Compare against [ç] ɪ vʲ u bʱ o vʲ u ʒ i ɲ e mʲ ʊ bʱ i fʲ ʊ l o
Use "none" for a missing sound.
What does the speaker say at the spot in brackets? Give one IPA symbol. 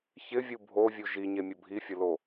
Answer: ç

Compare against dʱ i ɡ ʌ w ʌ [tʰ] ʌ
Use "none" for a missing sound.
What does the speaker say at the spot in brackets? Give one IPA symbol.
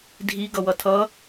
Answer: tʰ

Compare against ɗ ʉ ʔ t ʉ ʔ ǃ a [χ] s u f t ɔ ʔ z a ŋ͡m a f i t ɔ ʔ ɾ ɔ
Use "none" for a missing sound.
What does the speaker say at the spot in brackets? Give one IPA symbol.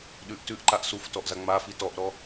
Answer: ʔ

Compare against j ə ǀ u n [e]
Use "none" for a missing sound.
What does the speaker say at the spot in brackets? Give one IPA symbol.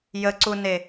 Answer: e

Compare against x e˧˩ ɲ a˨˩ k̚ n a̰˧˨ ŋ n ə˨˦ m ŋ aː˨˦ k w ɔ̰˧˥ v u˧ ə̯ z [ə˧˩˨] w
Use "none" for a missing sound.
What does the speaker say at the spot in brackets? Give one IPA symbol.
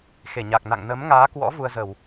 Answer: ə˧˩˨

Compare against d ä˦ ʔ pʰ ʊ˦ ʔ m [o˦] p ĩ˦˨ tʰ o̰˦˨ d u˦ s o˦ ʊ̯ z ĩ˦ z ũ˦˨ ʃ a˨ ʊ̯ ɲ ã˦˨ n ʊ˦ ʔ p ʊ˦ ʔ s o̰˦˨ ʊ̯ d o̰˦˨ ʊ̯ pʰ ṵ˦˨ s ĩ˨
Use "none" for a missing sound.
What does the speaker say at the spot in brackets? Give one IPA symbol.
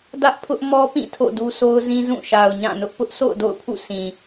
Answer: ɔ˦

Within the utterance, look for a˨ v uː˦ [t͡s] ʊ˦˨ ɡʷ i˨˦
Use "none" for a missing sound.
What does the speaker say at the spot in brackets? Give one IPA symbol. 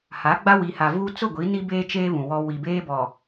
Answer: t͡s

